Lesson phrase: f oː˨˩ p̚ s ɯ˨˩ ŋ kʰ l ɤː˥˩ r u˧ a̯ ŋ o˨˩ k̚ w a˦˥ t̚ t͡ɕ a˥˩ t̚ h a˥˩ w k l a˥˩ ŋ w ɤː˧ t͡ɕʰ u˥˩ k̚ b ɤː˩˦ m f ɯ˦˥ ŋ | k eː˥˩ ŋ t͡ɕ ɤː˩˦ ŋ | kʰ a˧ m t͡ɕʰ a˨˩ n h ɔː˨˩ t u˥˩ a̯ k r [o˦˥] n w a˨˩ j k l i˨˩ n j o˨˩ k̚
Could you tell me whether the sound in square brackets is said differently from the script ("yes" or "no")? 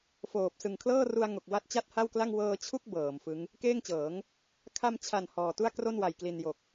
yes